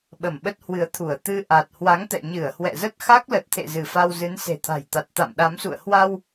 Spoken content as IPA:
ɓə˧˩mɓə˦˥t̚hwɨ˨˦ə̯t̪ʰu˧˩ə̯ t̪ɨ˧ʔa˨˩t̚ hwa˨˦ŋt̪ɛ̰˧˨ɲɨ˧˩ə̯ hwɛ̰˧˨zə˦˥t̚ xa˦˥k̚lə˨˩t̚t̪ʰḛ˧˨ zɨ˧˩fa˧wzɨ˨˦n se̤˨˩t̪ʰa̤˨˩jt̪a˨˩t̚t̪a̰˧˨m ɗa˨˦msṵ˧˨ə̯ hwa˧w

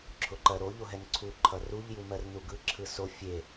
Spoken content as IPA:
ǁʰʊǃɜɾo ʎoɦɛnǀʰu ǃʰʌruʎ jumɜrnuɡɯ ǁʰɯso fʲe

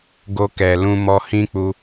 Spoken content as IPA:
ɡo˧ kɛ˨lũ˧mɔ˧ hĩ˦k͡pu˧

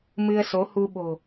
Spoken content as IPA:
mɨ˧ə̯so˨˦hu˧ɓo̤˨˩

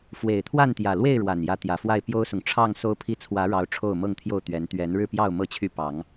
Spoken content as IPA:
fwe˨˩ɪ̯t̪ʰwa˥˨nt̪jä˨˩lwe˥˨ɪ̯ ɻwa˨˩njä˨˦ t̪jä˨˩fwa˥˨ɪ̯ pjo˦ʊ̯sʊ˨ŋ ʈ͡ʂʰɑ˥˨ŋ so˦ʊ̯pʰi˦ t͡sʰwä˨˦ɻɑ˨˦ʊ̯ ʈ͡ʂʰo˥˨ʊ̯mɤ˥˨ŋt̪ʰjo˥˨ʊ̯t̪ɥɛ˨˦n t̪ɥɛ˨˦n ɻɻ̩˥˨pjɑ˥˨ʊ̯ mɤ˥˨t͡ɕʰy˥˨ pɑ˨˦ŋ

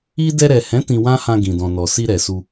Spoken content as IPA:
i˦ dɛ˧ɾɛ˨hɛ̃˨˦ tĩ˧wã˦hã˧ ɡĩ˨dɔ̃˨nɔ˨si˧ ɾɛ˨su˧

